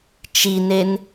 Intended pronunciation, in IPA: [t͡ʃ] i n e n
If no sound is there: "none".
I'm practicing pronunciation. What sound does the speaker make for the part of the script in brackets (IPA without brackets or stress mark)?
t͡ʃ